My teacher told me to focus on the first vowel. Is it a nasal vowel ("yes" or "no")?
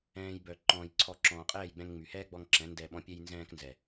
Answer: yes